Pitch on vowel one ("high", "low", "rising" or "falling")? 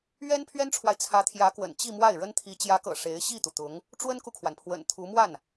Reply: high